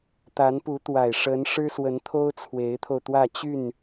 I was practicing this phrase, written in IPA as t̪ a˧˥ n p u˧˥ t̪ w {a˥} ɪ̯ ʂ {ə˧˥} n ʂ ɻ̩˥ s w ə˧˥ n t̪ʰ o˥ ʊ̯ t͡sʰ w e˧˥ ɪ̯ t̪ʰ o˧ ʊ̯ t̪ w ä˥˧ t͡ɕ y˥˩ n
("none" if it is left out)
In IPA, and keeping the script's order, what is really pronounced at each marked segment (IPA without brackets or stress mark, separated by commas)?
a˨˩, ə˧˥